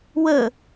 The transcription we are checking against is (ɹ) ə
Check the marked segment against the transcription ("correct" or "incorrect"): incorrect